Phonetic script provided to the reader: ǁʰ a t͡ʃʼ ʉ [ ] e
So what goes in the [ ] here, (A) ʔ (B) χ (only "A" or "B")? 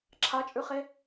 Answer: B